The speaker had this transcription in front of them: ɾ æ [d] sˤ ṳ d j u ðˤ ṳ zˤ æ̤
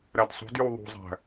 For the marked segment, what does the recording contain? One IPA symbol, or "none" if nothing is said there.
d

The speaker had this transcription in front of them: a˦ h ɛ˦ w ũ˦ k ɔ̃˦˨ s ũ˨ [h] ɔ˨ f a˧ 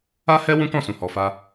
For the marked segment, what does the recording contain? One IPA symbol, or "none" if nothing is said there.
h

